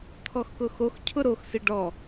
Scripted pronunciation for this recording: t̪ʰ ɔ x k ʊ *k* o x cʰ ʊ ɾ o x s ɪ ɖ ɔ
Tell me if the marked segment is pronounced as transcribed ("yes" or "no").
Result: no